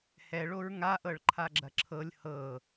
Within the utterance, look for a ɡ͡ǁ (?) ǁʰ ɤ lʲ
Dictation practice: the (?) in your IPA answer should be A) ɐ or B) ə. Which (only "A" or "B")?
A